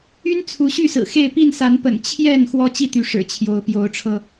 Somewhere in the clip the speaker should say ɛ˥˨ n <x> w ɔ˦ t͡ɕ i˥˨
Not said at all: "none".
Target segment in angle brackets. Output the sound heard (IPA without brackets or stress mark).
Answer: x